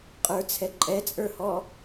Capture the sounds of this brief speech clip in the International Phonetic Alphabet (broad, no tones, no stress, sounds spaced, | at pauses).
qʼ ə˞ t͡sʰ ɛ ǃʼ ɛ t͡sʼ ə˞ h ɔ